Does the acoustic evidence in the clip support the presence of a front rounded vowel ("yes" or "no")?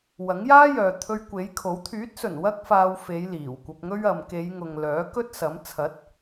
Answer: yes